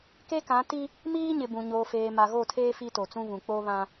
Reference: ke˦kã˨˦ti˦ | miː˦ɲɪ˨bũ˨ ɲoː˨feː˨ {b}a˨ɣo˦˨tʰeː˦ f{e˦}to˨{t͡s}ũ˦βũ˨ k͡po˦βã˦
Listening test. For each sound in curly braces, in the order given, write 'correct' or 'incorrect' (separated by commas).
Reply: incorrect, incorrect, correct